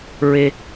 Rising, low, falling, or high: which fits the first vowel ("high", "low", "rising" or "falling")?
high